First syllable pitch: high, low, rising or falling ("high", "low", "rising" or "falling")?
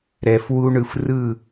low